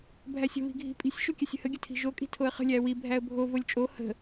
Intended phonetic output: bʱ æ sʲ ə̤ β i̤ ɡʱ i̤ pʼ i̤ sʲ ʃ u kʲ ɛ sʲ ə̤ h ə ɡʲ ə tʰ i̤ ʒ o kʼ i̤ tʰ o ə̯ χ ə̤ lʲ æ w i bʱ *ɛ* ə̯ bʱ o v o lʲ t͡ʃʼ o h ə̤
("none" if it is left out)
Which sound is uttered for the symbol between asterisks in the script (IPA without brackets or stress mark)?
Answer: æ